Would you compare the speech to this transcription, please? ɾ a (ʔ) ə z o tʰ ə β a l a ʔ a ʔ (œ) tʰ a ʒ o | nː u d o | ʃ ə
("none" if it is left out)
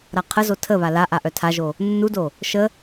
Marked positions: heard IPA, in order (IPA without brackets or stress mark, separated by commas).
qʰ, œ